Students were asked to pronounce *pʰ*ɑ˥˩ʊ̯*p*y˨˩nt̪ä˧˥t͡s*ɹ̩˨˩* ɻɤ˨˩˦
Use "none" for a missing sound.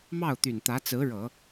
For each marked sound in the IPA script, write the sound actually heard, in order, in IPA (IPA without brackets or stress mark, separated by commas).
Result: m, t̪, ɹ̩˧˥